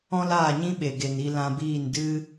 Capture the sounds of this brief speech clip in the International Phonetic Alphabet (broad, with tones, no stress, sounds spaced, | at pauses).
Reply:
ɔ̃˦ l aː˦˨ ɲ ĩ˦ ɓ e˨ ɡ e˨ n i˧ l ã˧ b iː˦˨ n d ɨ˦